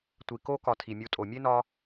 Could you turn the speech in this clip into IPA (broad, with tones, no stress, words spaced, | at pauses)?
tʷi˨ko˦ kɒ˧tʰi˨mʲu˧ tʼo˨mʲe˦ nɒ˦